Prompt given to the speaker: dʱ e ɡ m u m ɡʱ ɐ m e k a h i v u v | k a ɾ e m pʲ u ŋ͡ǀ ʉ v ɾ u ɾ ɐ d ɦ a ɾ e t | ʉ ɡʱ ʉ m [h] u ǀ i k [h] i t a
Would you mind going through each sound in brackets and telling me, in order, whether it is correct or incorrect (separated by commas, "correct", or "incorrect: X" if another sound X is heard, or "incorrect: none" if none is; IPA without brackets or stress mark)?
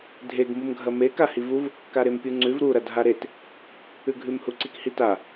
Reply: correct, correct